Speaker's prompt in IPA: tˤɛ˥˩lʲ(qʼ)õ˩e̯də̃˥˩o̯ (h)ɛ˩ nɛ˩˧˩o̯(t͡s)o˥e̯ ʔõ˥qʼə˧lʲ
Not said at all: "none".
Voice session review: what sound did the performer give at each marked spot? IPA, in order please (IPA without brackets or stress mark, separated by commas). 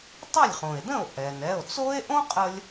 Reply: χ, ʔ, t͡s